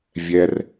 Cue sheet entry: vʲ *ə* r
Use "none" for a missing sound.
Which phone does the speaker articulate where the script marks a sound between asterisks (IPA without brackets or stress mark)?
ɛ